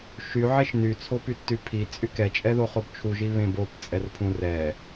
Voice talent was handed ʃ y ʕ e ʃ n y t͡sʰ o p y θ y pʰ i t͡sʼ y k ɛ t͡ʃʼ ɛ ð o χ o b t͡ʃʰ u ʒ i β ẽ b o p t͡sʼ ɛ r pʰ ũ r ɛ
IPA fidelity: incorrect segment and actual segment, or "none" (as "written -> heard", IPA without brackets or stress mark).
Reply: θ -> tː